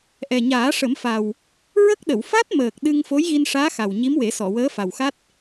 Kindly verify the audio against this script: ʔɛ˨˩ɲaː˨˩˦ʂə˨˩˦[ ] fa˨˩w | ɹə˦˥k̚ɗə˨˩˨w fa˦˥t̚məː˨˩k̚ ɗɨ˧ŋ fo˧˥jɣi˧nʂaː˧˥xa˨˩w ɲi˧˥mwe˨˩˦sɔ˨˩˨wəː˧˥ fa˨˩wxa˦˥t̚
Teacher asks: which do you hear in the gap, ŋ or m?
m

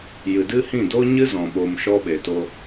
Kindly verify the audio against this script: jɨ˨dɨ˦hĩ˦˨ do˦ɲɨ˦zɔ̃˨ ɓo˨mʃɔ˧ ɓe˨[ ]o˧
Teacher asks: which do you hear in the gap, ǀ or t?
t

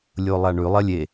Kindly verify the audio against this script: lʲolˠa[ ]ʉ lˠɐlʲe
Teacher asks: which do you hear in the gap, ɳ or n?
ɳ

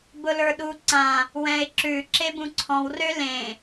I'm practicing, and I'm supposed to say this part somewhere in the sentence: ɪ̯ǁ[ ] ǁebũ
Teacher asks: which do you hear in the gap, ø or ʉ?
ʉ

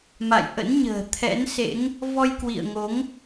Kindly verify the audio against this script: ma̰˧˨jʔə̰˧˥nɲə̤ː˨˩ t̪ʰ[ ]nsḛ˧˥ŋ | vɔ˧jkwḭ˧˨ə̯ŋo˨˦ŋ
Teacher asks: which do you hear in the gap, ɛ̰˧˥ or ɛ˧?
ɛ̰˧˥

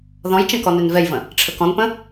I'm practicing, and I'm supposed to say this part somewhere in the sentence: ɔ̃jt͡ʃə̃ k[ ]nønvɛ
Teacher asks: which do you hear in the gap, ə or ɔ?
ɔ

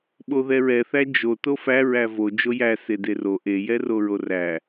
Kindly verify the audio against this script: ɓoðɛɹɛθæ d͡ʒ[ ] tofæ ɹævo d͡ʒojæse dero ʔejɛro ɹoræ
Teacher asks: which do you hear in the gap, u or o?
o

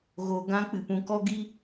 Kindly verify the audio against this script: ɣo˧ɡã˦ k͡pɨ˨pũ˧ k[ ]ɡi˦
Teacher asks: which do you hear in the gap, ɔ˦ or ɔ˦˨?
ɔ˦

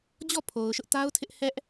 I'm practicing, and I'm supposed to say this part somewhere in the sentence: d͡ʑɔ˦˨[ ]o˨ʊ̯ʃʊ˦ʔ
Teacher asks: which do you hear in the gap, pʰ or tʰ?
pʰ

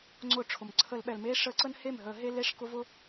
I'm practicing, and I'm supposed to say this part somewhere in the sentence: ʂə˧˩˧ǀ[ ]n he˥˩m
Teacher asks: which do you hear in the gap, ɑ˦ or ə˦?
ə˦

